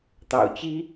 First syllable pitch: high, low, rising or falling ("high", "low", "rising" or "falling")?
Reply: low